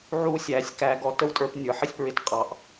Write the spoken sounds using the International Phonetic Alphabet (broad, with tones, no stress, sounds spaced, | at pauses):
ʕ u˦ sʲ æ˨˦ sʲ k æ˧ ɡ ɔ˧ t ə˦ w tʼ ə˞˧ p nʲ ə˞˨ ħ ɪ˦ sʲ p ɹ ɪ˧ t qʼ ɑ˨ ʔ